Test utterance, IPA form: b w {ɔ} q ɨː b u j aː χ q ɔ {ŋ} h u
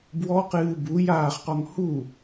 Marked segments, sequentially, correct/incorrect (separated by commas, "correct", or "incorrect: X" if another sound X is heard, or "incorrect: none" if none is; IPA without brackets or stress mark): correct, correct